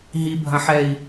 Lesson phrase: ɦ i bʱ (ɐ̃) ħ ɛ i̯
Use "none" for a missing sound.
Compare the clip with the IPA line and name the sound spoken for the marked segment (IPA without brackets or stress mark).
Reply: ɐ̃